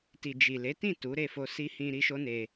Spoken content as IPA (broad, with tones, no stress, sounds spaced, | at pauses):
t i˨ d͡ʒ i˨ l e˨˦ t ĩ˦˨ t u˨˦ ɾ e˦˨ f o˧ s i˧ h ĩ˧ ɾ i˦ ʃ o˦ n e˧